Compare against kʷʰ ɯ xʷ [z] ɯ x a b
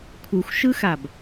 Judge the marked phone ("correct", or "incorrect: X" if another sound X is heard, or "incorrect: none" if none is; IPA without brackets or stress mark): incorrect: ʃ